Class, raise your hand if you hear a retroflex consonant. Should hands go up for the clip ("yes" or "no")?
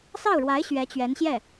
yes